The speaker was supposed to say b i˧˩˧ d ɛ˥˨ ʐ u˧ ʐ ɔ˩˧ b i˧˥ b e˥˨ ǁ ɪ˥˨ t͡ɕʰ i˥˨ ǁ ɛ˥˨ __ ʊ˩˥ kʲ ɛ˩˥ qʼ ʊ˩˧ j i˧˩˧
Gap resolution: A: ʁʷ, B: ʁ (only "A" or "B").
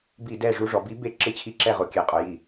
B